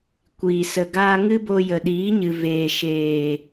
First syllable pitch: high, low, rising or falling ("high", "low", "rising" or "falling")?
low